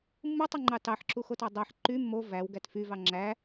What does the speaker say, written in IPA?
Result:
mː ɯ tˤ ɯ ŋ͡ǃ ɑ t ɑ ħ ǁ u x o t ɑ dˤ æ ħ ǃ y mː o v æ w ɡ æ t f y v ɑ ŋ͡ǁ æ

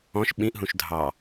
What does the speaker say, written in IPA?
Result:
ɔ̃ ʃ ɓ ĩ ʔ ɦ ũ ʃ dʱ ɑ

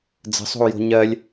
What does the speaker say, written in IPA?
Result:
d͡z ə̤ sˤ o̤ u̯ j o̤ ɲ ɜ lʲ

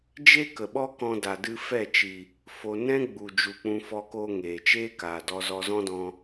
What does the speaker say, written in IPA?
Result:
d͡ʒ e˦ k ə˨ ɓ ɔ˦ k ɔ̃˧ d a˨ d ɨ˧ f ɛ˦˨ t͡ʃ i˨ | f o˧ n ɛ̃˦ ɡ͡b u˨ d͡ʒ u˨ k͡p ũ˧ f ɔ˧ k oː˧ ŋ eː˨ t͡ʃ eː˦ k aː˨ d ɔ˧ z ɔ˧ z ɔ̃˦ d ɔ̃˧

